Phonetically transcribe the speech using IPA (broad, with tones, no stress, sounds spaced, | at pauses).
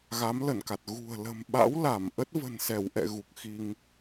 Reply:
ɣ a˨˦ m l ə˧˩ n k a˨˩ t̚ ɣ ṳ˨˩ ə̯ l ə̤˨˩ m ɓ a̰˧˥ w l a˧˩ m ʔ ə˦˥ t̚ v ə̤˨˩ n s ɛ˧˩ w ʔ ɛ̰˧˨ ɣ u˨˩ k̚ x i˧ ŋ